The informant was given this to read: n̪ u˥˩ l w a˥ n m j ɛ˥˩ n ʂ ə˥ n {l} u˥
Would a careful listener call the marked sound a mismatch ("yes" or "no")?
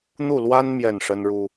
yes